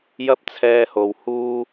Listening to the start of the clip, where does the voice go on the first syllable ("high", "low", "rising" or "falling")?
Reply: high